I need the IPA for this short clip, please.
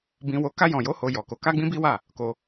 b ĩ˧ w o˧ k a˧ j ɔ̃˨ j o˨˦ h o˧ j ɔ˨ k o˨˦ k a˦ ɡ͡b ĩ˦ b i˦ w a˦˨ | k o˧

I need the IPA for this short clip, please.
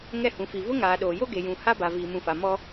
ŋ ɛ˦˨ h ũ˨ f i˨ v ʊ˦ ŋ aː˨ ɗ oː˨ j o˦ ɡ e˨ j ũ˨ h a˦ b a˨ v iː˨ m ũ˨ f a˨ m ɔ˦

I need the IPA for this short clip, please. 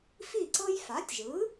f i˥˩ ǀ ɤ˥ j f a˩˥ tʲ ʒ ɯ˩˥

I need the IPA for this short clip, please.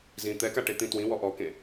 z ĩ t̪ ɛ k a ʈ e t̪ ĩ t w ĩ w ɔ ʔ ɔ k ẽ

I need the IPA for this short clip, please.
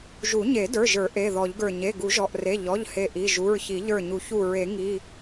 ʒ u˨˩˦ ɲ e˨˩˦ d ə˞˩˧˩ ʒ ə˞˨˩˦ ʔ e˩˧˩ ð ɔ˨˩˦ ʎ ɡ ə˞˧˩ ɲ e˩˧˩ ɡ u˨˩˦ ʒ ɔ˩˧˩ ʔ r e˩˧˩ ʎ ɔ˩˧˩ ʎ h e˧˩ ʔ i˩˧˩ ʒ u˩˧˩ ɹ ç i˨˩˦ ʎ ə˞˧˩ ɲ u˨˩˦ ç u˧˩ ɹ e˨˩˦ ŋ i˩˧˩

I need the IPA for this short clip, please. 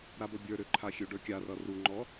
ɾ a b ʌ bʲ ə˞ ɾ ø ǃʰ a xʲ ø ɖ ə˞ kʲ a r ʌ r u ŋ͡ǃ ɔ

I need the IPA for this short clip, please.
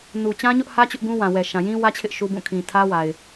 n u˨ t͡ɕ ã˦ ɲ ʊ˦ ʔ h ä˦ t͡ɕ ʊ˦ ʔ ɡ ũ˦ w ã˨ w ɛ˨ ʃ ã˨ j ĩ˦ w ä˦ t͡ɕʰ ɪ˦ ʔ ʃ u˦ b ũ˦˨ kʰ ĩ˨ tʰ ä˦ w a˨ ɪ̯

